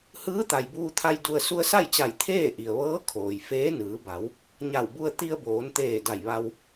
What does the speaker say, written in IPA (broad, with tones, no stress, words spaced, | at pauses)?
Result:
hɯː˧˥t̪a˩jbuː˧t̪ʰa˧j du˧ə̯ su˧ə̯sa˥˨jt͡ɕa˧˩j t̪ʰeː˥˨ʔi˩ə̯ʋɤː˧˥ kʰoː˩jfeː˧˥ nɯː˩˧ba˩˧w | ɲa˧˩wbu˧ə̯ t̪i˧ə̯ boː˩˧nt̪eː˧˩da˧˩jʋa˧w